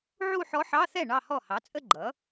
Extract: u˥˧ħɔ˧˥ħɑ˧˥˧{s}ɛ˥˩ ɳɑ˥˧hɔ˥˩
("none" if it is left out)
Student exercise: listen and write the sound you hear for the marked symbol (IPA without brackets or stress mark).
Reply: θ